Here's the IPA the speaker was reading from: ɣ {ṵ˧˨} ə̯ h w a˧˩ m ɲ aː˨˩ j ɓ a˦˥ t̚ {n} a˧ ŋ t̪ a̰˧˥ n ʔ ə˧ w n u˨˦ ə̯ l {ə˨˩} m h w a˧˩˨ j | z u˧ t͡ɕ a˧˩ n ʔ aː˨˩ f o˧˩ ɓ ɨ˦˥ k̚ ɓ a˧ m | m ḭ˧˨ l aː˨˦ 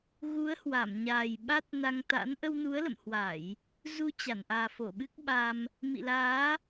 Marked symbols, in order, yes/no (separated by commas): no, yes, no